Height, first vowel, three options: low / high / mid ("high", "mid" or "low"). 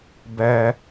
mid